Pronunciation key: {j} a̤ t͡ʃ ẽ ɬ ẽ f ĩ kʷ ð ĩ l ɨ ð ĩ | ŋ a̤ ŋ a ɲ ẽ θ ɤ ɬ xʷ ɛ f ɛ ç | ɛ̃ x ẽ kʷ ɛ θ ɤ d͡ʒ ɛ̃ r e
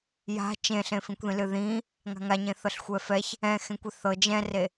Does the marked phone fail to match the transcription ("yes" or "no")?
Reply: no